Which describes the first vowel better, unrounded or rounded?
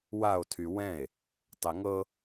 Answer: unrounded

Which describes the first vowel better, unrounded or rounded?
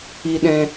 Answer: unrounded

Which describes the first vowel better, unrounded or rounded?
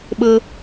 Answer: unrounded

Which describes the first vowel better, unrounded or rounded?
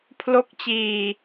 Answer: rounded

